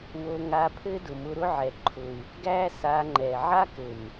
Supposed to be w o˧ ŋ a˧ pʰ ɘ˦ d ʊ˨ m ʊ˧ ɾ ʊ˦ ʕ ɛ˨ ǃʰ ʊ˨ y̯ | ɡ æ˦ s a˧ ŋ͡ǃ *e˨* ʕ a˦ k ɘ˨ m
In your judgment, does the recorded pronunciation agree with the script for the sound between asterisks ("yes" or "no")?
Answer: no